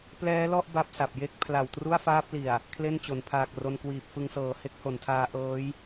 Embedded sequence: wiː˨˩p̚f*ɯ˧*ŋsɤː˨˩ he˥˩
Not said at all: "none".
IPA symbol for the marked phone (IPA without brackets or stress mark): ɯ˧